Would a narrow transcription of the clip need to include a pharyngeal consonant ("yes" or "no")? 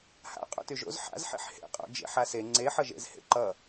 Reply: yes